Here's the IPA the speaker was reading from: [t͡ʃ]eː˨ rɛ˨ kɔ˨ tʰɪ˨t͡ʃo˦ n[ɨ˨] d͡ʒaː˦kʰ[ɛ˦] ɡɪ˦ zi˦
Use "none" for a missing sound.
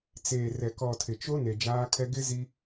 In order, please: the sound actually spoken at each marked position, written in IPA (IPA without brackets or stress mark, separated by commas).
t͡s, e˨, ɛ˦